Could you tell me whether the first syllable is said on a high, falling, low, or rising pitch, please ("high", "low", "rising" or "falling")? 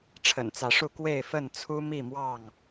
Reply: low